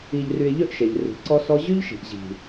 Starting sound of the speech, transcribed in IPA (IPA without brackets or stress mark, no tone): i